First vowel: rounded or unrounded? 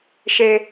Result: unrounded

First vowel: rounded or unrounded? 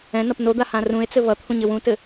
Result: unrounded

